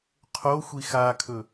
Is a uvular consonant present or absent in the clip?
present